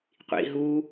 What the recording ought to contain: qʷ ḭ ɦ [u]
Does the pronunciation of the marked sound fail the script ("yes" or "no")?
no